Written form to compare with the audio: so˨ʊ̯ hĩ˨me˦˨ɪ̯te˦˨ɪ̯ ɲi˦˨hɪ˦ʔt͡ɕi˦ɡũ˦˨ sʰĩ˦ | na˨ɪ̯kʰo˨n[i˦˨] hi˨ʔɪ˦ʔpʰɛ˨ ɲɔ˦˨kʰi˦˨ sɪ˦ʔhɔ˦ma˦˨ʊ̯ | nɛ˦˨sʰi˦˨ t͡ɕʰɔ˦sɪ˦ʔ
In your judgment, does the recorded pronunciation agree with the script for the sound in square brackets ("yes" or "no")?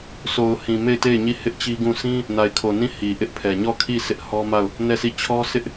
no